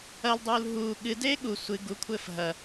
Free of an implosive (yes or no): no